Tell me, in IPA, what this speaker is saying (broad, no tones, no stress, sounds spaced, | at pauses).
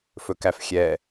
f ɵ k æ f xʲ ɛ